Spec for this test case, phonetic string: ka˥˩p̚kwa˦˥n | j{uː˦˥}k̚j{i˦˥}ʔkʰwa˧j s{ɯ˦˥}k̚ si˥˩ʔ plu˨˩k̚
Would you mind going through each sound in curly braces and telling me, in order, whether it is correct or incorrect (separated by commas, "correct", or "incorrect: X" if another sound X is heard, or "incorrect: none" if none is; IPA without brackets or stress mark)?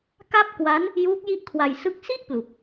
correct, incorrect: i˥˩, correct